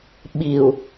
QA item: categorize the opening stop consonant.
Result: implosive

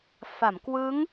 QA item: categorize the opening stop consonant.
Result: plain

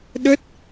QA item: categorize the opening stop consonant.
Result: implosive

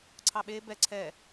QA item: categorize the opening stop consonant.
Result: click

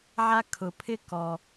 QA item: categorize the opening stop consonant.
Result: aspirated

